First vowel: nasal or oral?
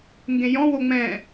nasal